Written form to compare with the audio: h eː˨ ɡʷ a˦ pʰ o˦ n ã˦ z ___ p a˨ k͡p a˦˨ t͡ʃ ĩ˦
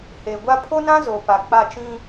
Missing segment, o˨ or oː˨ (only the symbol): o˨